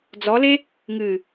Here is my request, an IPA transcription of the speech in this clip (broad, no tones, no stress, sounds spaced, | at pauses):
d͡z ɔ l e | ŋ ɨ